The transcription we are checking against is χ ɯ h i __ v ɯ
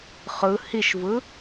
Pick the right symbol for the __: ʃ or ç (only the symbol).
ʃ